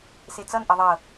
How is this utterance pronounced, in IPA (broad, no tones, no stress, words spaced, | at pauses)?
set͡sʌn ʔɐðˤɤ